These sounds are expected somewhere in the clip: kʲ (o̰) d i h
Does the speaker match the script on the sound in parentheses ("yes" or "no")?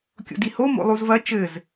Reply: yes